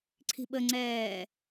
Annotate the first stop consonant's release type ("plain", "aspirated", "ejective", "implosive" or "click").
click